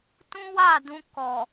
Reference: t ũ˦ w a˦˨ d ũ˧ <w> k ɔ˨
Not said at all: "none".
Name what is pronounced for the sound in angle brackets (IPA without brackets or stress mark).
none